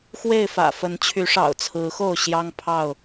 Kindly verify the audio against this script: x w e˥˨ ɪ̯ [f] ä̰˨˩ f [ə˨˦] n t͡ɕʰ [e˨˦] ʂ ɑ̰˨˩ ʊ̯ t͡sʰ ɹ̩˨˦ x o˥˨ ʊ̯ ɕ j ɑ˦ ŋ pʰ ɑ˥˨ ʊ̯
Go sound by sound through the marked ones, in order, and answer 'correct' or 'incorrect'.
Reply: correct, correct, incorrect

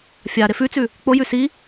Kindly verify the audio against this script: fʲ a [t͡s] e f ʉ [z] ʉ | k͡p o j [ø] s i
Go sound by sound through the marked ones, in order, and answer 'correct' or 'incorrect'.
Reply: incorrect, incorrect, incorrect

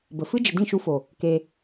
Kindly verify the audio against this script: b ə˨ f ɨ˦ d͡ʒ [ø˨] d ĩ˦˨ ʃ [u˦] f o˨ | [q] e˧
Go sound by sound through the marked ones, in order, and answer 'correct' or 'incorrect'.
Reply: incorrect, incorrect, incorrect

